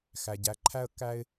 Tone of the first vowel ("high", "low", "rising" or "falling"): low